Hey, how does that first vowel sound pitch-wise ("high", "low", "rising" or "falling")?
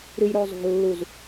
low